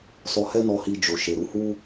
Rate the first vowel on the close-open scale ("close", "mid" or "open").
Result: mid